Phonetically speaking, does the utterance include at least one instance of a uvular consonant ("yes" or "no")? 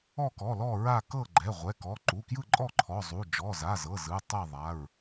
yes